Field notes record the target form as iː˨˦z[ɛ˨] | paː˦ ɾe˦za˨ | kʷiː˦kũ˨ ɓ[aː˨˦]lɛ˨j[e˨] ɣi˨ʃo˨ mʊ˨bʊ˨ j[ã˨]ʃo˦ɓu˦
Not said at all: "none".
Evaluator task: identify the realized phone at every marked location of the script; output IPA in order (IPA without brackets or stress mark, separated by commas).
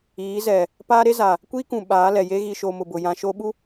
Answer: ɛ˨, aː˨˦, e˦, ã˨